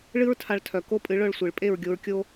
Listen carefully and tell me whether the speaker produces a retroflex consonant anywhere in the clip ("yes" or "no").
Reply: yes